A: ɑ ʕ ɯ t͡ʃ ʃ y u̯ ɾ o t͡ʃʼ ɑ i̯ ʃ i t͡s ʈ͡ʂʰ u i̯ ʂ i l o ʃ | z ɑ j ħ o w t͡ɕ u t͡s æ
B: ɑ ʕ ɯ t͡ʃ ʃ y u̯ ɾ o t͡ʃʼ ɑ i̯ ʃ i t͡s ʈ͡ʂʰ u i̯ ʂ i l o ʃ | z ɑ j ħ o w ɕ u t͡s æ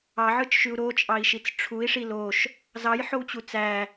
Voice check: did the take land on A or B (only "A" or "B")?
A